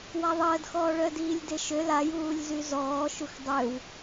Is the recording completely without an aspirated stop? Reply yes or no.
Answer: yes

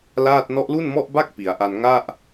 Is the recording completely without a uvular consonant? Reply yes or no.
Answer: yes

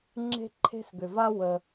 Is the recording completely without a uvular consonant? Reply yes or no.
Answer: yes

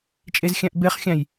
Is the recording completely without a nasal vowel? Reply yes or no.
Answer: no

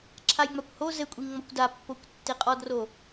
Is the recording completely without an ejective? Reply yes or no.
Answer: no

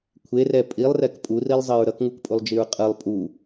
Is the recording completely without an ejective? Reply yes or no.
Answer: no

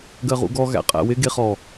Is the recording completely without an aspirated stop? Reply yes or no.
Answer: yes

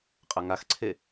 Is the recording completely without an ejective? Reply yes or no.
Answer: no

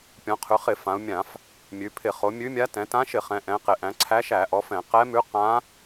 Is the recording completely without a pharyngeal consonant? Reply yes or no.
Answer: yes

